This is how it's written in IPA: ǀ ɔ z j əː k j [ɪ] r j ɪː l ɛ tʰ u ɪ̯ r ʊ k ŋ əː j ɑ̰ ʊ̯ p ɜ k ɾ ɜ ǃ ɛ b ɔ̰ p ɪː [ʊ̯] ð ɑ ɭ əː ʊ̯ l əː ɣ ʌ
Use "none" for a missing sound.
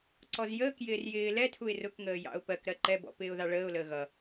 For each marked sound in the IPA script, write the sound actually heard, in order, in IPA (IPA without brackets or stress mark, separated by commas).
ɪː, ʊ̯